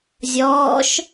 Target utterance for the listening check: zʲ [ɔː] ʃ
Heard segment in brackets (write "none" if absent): ɔː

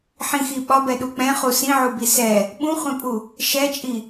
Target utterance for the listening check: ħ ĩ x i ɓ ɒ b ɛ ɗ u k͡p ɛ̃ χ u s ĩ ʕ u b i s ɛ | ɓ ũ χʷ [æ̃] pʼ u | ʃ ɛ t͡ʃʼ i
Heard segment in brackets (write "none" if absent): ɛ̃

